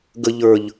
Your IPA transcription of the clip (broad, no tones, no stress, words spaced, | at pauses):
ɡə ʎə˞ʎ